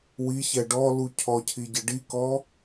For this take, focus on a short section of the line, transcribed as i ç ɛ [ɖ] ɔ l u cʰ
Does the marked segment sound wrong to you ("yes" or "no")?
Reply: no